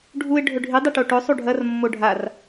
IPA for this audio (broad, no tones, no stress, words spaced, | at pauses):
ɖʱuɪ̯ ɖʱɵɖʱi dˤeʈoʈɵ sˤuɖʱɐr mːoɖʱar